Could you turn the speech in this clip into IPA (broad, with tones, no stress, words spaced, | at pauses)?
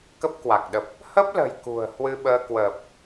kə˦˥p̚kwa˨˩k̚ɗə˨˩p̚ | hə˦˥p̚lə̤˨˩j kṳ˨˩ə̯ hwɨ˧ɓəː˧ kwəː˨˩p̚